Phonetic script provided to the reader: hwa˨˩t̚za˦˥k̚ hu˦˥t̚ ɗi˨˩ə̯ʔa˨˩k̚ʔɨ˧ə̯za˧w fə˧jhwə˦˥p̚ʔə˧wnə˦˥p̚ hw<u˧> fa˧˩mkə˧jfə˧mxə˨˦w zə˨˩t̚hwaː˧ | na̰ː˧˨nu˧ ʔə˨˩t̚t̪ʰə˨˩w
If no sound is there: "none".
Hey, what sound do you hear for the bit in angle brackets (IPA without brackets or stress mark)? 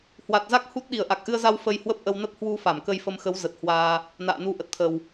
u˧